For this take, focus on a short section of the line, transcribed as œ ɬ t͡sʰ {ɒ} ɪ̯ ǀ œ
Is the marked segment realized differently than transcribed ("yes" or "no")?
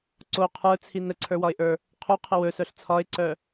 no